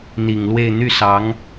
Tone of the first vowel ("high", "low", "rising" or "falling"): low